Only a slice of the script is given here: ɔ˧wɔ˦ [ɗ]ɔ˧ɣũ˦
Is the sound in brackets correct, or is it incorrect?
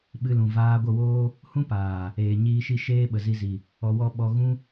incorrect